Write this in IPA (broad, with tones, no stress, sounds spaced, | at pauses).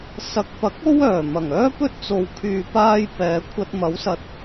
s ɐ˨˥ k̚ p ɐ˨˥ k̚ o˥ w œː˨˩ m ɐ˨˩ ŋ œː˥ p ɵ˥ t̚ t͡s o˨ w kʰ yː˨ p aː˧ j p ɛː˨˧ kʷʰ ɐ˧ t̚ m ɐ˨˥ w s ɐ˨ t̚